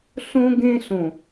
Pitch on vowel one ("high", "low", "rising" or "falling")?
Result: high